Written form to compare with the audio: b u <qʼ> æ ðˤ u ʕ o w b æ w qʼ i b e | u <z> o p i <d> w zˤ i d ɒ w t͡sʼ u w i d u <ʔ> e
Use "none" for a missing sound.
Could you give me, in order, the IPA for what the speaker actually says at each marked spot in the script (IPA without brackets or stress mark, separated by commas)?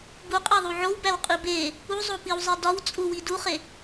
qʼ, zˤ, none, χ